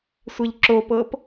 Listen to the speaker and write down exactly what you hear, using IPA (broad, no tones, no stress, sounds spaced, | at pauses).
sʷ e ʎ ǁ o p ɤ p